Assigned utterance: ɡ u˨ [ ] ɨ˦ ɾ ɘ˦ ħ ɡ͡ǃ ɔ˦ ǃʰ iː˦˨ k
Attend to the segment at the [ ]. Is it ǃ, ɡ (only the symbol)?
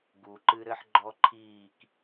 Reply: ǃ